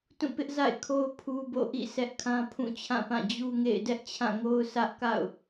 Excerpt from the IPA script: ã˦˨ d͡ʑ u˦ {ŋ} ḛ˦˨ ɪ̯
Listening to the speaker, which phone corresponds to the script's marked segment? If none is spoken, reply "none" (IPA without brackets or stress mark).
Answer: ŋ